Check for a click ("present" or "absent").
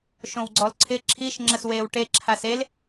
present